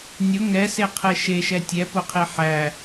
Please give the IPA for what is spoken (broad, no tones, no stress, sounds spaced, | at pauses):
nʲ ʊ ŋ ɛ s e qʰ ɛ ʃ e ʃ ɛ tʲ ɛ p ʊ qʰ e ħ æ